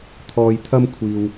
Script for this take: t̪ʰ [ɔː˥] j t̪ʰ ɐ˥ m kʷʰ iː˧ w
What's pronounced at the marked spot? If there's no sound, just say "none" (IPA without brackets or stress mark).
ɔː˧